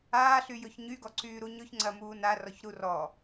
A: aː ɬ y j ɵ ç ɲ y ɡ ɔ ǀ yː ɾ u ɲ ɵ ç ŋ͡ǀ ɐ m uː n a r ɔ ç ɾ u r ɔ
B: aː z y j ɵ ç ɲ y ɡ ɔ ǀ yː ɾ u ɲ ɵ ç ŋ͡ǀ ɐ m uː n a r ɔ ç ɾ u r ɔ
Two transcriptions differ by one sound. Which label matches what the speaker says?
A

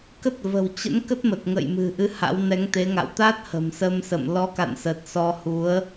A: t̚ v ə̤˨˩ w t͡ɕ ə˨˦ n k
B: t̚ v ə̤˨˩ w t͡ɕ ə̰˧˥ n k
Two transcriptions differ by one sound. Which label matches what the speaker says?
B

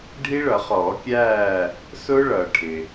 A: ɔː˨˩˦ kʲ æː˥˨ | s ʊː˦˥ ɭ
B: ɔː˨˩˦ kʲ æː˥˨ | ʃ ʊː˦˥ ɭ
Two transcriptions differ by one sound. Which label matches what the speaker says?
A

